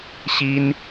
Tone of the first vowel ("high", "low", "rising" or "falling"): high